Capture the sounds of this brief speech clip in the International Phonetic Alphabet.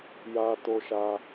ja˦to˦ʃa˦

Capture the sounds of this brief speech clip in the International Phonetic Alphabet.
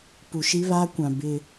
pu˨ʃi˦βa˦kʷã˨ bɪ˦

